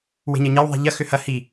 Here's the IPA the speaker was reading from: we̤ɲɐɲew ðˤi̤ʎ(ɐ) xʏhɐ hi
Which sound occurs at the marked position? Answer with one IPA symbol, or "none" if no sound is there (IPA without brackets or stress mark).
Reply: ɐ